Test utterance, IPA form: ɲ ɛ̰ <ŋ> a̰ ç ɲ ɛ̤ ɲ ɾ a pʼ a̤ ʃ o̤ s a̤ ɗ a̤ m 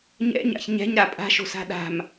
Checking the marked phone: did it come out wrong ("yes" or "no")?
yes